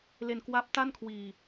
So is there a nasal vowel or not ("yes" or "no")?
no